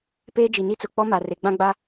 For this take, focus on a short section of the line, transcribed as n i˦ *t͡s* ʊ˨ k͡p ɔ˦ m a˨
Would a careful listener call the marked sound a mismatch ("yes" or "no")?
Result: no